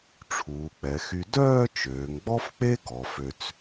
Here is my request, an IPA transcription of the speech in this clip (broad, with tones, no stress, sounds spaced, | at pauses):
ʈ͡ʂʰ uː˩˧ k͡p ɛ˩˧ x y˧ d œː˥˧ t͡ʃ øː˩˧ ŋ ɡ͡b ɔ˥ f k͡p e˥ ɡ ɔ˩˧ f ø˧ t͡s